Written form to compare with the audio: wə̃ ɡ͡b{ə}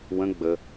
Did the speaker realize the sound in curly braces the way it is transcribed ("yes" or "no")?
yes